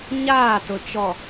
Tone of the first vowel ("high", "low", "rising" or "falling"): falling